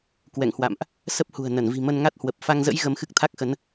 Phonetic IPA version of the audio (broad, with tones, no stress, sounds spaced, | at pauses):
k w ɛ̰˧˨ ŋ h w a̰˧˨ m ʔ | s ə˦˥ p̚ h ṳ˨˩ ə̯ n ə˧˩ n v i̤˨˩ m ə˧ n ŋ a˦˥ t̚ h w ə˨˩ p̚ f a˧ ŋ z ə̰˧˥ j ɣ ə˧ m x ɨ˦˥ k̚ t̪ʰ a˦˥ k̚ x ə˨˦ n